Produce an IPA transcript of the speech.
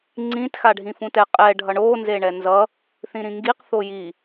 ŋ͡ǀ ĩ t x a ɖʱ ĩ f ũ t ɛ qʼ ɛ ɖʱ ʌ ɳ o n z e ɳ ɛ n z ʌ | θ ĩ ɾ ĩ ŋ ɡ i q θ o j i

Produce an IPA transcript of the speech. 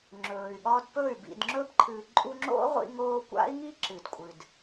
ŋ͡ǁ ɵː˨ y̯ ɠ ɒ˧ d p ɵ˦˨ y̯ b ḭ˨ d ŋ͡ǁ ɵ˧ b ǃʰ ɨ˨ ǃʼ u˧ ŋ͡ǁ o̰˦ ʁʷ ḭ˧ ŋ oː˧ kʷ a̰˦ i̯ ŋ i˦ ǁ ɨ˨ d kʷʼ ɨ˨ d

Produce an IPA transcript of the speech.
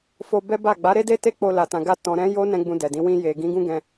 f o˧ b ɛ˦ b a˦˨ ɡ͡b a˨˦ ɾ e˦ d e˦ t e˦ k͡p o˧ l a˨ t ã˨ ɡ a˧ t ɔ̃˨ ɾ ɛ̃˨˦ j o˦ n ɛ̃˦ ɡ͡b ũ˧ d ɛ˨ d ĩ˨˦ w ĩ˧ j e˨ ɡ ĩ˨˦ ɡ ũ˦ ɡ ɛ̃˧

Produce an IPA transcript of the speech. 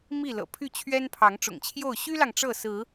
m i˥˨ l ɤ̰˨˩ pʰ y˥˨ t͡ɕʰ ɥ ɛ˦ n pʰ ɑ˨˦ ŋ ʈ͡ʂ ʊ̰˨˩ ŋ t͡ɕʰ j o˥˨ ʊ̯ ɕ y˦ l ɑ˨ ŋ ʈ͡ʂ ɤ˥˨ s ɹ̩˨˦

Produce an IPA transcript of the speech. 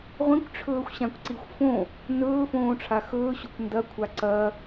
ʁʷ ĩ kʷ ʈ͡ʂʰ ɵː xʷ ɕ ã kʷ ǀ i xʷ f õ | n ɵː f õː ʈ͡ʂʰ a x ɵː ɕ o kʷ n d ɐ kʷʰ a ǀ ɐ

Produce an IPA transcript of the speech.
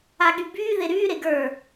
a ɠ y b yː ð e ɾ yː ɾ e ɡ ə˞

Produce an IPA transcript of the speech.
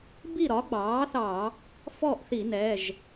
b i˥˨ ɾ ɒ˩˥ ɡ͡b ɑː˩˥ θ ɑ˧˩˧ | f ɔ˥˨ ʔ θ i˧˩˧ n ɛ˩˧˩ ʒ

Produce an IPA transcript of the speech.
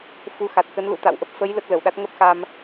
f u˨˦ x a˨˩ t̚ k ə˨˦ n l ṵ˧˥ t̪ a̰˧˨ w ʔ ə˦˥ p̚ f ə˨˦ j l ə˦˥ t̚ l ə˧˩ w ɗ a˦˥ t̚ ŋ ə˦˥ p̚ x a˧ m

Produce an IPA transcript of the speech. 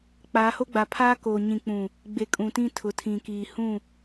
k͡p aː˨˦ h o˦ ɡ͡b a˨ pʰ aː˦ k oː˨ ɲ ĩ˨ k͡p ũ˨ | ɡ͡b e˨ kʼ ũ˨ t ĩ˦ tʰ ʊ˨ tʰ ĩ˨ k iː˨ h ũ˦˨

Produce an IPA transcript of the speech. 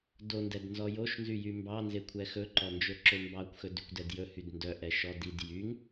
d o n d ɛ d n z ɔ j o ʃ n z y j y m b ɑ n z e kʷʰ ɛ x ɵ ǃ ɔ n d͡ʒ ɵ ǁ ø m b ɑ kʷ x ɵ d y kʷ d ɛ d j ɵ h y d n d œ ʔ ɛ ʃ ɔ d i d j y ŋ

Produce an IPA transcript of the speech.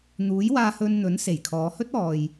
n̪ uː˨˥ j w aː˧ h ɵ˧ n n̪ ɵ˨˥ n s e˨˩ j kʰ ɔː˨˧ h ɵ˥ t̚ ɔː˨ j

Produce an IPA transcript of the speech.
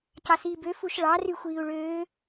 c ɑ s iː b ø f u ʃ ɭ ɑ r y xʷ iː u̯ ɭ øː

